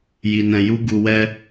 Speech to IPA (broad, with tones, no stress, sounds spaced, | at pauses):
j i˨ n ɛ̃˨ j u˧ ɡ u˨ w ɛ˧